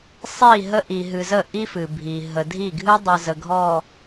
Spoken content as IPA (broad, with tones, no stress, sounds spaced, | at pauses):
sˤ i˦˨ ɦ ə˦ ʔ i˨ ɦ ɨ˨ z ə˦˨ ʔ i˦ f ɨ˨ bʱ i˨ ɦ ə˨ dʱ i˦˨ ɡʱ ɨ˦ dˤ ɨ˨ z ə˨ ɡʱ ɔ˨